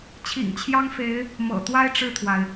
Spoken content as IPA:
t͡ɕʰḭ˨˩ŋt͡ɕʰjɑ˥ŋfe˧˥ɪ̯ | mɤ̰˨˩t̪wa˥ɪ̯ ʈ͡ʂɻ̩˥˩t̪ʰwa˩ɪ̯

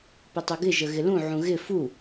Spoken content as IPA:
pɪtˤoɡɪ ʒəɣɪlũ ʕũɣɪ fu

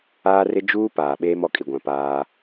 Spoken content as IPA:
aː˦rɪ˦ d͡ʒuː˦ paː˨ɓeː˦m ɔ˨kʼi˨ɡʷã˨ paː˦

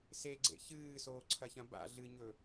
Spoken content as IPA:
seɡ͡ǀḛ çɨːsoːǀʰɐçɐ̃ ba̰ ɮɨɲɵ

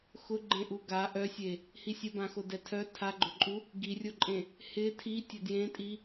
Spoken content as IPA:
xʊɡ͡ǃẽ ʔuɡa ʔœsʲe | hisʲəbãxo dɛtʰœ tʰaɡ͡ǃʊǃʼu | ɡirʲoǃʼẽ | hɪ tʰi tʲœdjẽtʼi

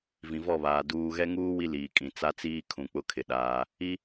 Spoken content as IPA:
vĩ˨vɔ˦˨βaː˨ duː˨ɣɛ˦ ŋuː˦ wi˦liː˨kʼĩ˨ t͡sa˦t͡siː˦ kʰũ˨k͡pʊ˦kʰɪ˨ɗaː˦ | i˦

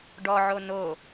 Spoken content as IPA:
ɖɔʕo no

